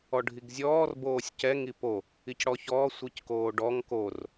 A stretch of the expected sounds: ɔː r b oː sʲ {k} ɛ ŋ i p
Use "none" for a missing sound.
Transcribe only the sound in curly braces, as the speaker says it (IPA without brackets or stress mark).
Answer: c